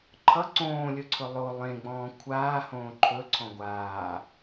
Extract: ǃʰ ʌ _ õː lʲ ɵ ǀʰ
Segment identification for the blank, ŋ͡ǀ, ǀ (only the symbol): ǀ